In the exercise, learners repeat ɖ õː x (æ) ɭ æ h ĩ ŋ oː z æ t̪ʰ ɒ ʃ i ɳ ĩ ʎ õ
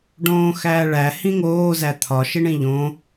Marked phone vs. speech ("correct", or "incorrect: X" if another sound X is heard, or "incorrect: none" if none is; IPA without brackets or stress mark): incorrect: æː